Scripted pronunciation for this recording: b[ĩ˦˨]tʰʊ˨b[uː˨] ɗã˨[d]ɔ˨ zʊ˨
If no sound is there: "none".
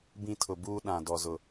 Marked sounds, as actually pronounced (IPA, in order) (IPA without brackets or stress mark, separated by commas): ĩ˦˨, uː˦, d